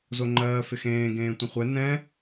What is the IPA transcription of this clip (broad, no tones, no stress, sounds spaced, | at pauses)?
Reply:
z o ŋ͡ǃ ɜː f ɪ x ẽː ɡ ẽː tʷ ẽ χʷ ɛ n ɛ̃